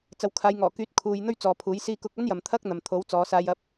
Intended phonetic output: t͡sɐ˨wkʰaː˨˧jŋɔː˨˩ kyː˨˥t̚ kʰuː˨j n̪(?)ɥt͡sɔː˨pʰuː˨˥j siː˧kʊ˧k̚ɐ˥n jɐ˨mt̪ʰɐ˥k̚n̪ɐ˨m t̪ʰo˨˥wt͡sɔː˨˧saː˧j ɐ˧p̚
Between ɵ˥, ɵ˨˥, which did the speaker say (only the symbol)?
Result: ɵ˥